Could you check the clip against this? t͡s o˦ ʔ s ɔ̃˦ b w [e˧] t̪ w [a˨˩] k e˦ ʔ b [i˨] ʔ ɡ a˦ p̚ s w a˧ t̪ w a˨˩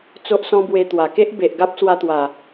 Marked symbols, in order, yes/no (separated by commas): yes, yes, no